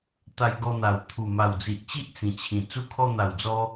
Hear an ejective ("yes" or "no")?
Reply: no